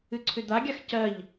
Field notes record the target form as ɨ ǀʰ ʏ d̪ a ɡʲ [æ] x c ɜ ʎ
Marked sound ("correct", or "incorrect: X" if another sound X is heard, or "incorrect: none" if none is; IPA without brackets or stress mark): incorrect: a